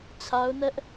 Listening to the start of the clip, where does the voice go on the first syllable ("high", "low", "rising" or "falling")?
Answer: high